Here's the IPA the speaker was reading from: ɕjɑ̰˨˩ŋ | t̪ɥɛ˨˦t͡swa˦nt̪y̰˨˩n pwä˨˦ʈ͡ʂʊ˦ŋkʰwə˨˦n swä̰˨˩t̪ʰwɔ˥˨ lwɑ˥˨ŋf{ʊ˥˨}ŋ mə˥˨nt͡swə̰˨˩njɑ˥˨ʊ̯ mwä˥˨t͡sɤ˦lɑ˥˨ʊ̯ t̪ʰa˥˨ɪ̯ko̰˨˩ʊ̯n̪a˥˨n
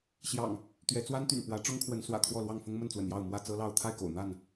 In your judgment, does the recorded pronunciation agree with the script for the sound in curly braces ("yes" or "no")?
no